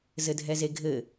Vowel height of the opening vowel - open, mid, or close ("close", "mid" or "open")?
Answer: mid